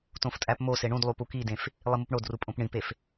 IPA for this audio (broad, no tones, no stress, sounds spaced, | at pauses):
t õ f tʼ æ p m o s e ɳ ũ d lˠ u p u k i d ẽ f | lˠ i m u p ɳ o d r u pʼ õ p ɳ ĩ p e f